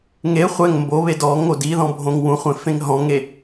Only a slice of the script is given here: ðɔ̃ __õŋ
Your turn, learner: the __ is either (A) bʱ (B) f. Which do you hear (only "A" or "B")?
A